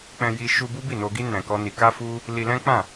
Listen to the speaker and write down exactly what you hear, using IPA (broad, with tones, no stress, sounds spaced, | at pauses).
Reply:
k͡p ɛ̃˧ j i˧ ʃ u˧ b u˦ b i˦˨ n o˧ ɡ i˦ n ɛ̃˧ k ɔ˦ n i˧ k a˦ f u˦ | l i˧ l ɛ̃˦ k͡p ã˦˨